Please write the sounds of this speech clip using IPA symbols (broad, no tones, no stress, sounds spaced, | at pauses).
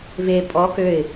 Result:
v e pʼ ɔ k ø ɪ̯